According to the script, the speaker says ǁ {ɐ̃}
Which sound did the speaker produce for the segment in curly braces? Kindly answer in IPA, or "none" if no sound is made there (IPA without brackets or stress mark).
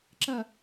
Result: ɐ